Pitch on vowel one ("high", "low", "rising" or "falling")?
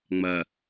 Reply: low